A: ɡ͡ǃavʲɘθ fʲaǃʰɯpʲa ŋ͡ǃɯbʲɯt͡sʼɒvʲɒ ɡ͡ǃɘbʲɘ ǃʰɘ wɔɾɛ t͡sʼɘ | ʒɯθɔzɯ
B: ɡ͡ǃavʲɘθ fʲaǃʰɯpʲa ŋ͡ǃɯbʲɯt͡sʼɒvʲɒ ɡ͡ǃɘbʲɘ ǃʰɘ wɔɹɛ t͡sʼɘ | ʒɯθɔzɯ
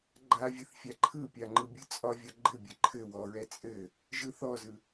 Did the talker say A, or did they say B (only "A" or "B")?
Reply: B